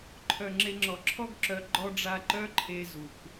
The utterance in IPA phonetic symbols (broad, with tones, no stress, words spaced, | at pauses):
ǃʰœ˨ ŋ͡ǁe˧ŋ͡ǁɔ˨ǁʰɔ˦ɡ ǁœ˨ ɡ͡ǃɔ˦ɖ͡ʐa˦ ǃœ˦ǃʰe˧ zu˨k